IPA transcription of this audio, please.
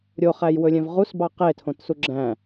ɾʲ o χ æ j w ɵ lʲ ɛ̃ v ʁ u s b ɑ q e tʰ õ t s u ɡ͡ǁ æ̃

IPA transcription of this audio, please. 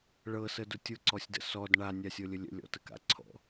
ɭ ɤ s ə d ʊ tʲ ʊ ǀ ɔ sʲ d ə̰ s ɔ d ɳ a nʲ a sʲ ɤ lʲ ə lʲ ə̰ lʲ ɔ̰ t ə k a̰ ǀʰ ɔ̰

